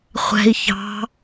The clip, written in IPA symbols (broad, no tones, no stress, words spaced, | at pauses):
χʷɛ̤i̯ çɑ̤